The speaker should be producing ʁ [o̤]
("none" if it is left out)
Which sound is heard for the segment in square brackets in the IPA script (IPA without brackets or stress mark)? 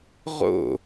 o̰